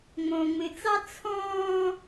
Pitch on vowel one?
low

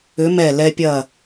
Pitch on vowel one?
rising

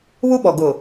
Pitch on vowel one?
high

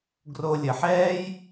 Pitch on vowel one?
low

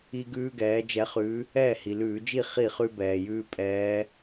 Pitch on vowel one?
high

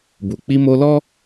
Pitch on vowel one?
low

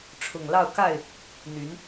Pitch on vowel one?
low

